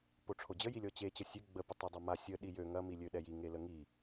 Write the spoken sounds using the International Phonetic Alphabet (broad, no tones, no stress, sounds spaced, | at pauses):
p o ʈ͡ʂʰ o d͡ʑ ə j i lʲ ɔ t͡ɕ e t͡ɕ ə sʲ ø ɡ͡b ə p ʊ tˤ ʊ dˤ o m a sʲ ə ɗ i j ø ŋ ɐ m i lʲ ø ɗ ɛ j i ŋ e l ə ŋ i